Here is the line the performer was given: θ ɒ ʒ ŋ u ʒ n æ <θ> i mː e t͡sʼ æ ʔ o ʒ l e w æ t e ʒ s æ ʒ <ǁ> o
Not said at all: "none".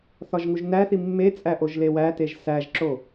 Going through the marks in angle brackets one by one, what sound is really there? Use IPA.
θ, ǁ

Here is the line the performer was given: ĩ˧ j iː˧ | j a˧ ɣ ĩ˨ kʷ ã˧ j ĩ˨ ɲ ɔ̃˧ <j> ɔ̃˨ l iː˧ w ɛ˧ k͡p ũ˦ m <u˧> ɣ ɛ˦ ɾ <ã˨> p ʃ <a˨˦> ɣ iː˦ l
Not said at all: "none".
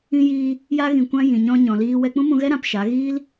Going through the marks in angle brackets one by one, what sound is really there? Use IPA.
ɲ, ũ˧, ã˧, a˨˦

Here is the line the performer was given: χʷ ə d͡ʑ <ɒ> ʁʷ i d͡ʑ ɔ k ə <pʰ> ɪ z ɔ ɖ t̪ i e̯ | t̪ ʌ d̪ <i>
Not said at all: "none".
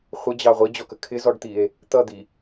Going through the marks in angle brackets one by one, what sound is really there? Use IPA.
ɑ, kʰ, i

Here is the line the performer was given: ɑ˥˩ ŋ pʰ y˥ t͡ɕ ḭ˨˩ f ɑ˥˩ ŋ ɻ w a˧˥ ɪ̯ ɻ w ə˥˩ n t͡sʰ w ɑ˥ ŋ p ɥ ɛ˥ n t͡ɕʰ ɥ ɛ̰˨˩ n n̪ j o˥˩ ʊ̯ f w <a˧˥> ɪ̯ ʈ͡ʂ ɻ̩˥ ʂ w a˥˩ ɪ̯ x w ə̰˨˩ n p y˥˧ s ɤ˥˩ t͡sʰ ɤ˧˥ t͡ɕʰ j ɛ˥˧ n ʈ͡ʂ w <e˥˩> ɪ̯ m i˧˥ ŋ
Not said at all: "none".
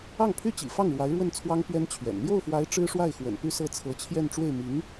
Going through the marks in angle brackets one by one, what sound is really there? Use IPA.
a˧˥, e˥˩

